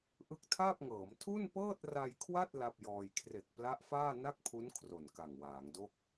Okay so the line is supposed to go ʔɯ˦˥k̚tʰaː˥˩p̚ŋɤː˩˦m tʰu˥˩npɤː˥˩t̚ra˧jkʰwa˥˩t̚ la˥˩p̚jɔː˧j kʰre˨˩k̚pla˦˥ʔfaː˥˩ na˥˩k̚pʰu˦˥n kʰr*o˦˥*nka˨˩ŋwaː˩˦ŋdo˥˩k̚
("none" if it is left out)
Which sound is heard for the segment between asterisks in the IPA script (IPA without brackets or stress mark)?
o˨˩